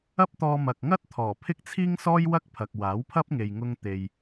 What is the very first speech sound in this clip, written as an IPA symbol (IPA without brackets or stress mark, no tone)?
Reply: ɐ